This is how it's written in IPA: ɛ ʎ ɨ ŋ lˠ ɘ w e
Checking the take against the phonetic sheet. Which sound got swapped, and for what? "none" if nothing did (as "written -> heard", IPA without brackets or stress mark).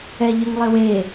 none